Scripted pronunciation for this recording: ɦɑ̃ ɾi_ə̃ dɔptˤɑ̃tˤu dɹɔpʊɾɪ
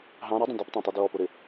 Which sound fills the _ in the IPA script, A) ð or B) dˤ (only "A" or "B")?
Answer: B